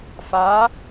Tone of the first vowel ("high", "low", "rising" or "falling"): rising